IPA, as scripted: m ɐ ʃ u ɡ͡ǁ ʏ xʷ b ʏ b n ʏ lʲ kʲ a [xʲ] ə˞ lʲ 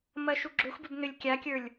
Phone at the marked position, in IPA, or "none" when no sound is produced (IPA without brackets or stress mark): kʲ